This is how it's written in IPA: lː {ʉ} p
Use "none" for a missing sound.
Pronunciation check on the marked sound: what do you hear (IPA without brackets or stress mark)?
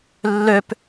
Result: ø